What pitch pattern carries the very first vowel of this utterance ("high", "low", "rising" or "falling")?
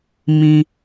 low